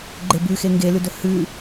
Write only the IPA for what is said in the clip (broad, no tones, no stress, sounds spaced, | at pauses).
ɡ͡ǃ e b ʉ x e ŋ ɡ e l ʉ d ɵ h ʉ